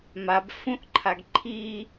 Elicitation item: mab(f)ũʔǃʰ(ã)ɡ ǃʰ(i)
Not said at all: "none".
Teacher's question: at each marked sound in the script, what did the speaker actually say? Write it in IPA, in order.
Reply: f, a, i

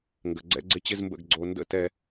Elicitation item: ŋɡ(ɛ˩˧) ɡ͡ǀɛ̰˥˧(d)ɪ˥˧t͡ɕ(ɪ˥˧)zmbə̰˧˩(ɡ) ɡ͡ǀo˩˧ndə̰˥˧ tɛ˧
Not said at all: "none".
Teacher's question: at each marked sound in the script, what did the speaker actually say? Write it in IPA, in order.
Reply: ə˩˧, ɡ͡ǀ, ɪ˥˧, ɡ

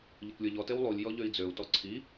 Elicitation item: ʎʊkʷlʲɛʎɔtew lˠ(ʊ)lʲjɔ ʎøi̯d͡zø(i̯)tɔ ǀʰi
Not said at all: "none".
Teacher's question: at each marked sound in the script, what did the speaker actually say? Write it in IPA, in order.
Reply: u, u̯

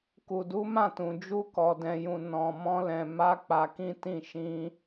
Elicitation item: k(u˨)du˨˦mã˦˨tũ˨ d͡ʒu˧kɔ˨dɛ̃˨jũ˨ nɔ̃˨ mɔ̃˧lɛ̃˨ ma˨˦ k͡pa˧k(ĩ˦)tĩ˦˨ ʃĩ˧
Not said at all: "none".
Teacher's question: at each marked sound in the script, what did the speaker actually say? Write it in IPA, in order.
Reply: u˨, ĩ˦

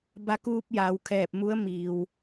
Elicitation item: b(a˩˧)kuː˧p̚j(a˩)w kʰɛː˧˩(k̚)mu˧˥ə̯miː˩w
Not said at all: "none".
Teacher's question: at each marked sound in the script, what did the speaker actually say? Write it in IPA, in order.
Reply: a˧, a˩, p̚

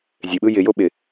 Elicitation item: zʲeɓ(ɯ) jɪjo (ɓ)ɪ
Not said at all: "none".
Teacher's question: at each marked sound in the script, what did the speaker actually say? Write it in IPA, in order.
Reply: ɯ, ɓ

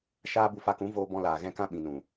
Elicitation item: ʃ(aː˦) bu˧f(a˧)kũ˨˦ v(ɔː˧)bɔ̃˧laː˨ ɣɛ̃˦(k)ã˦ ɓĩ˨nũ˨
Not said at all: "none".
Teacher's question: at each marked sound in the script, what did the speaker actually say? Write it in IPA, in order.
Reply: aː˦, a˧, oː˧, k

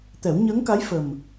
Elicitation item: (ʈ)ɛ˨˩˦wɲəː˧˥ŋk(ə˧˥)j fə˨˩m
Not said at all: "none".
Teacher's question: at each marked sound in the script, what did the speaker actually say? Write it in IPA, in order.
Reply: t̪, a˧˥

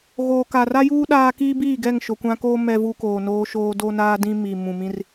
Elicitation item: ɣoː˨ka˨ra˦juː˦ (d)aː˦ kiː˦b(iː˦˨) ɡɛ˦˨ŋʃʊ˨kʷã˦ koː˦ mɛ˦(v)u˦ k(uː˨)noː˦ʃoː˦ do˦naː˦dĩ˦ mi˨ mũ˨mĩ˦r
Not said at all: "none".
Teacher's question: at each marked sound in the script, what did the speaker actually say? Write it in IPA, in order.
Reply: ɗ, iː˦˨, v, oː˨

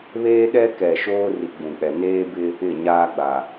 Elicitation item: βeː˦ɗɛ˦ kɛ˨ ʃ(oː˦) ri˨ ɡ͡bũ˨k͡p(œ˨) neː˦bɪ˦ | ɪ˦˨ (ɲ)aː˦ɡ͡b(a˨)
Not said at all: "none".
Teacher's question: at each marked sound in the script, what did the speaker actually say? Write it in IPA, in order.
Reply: oː˦, ɛ˨, ɲ, a˨

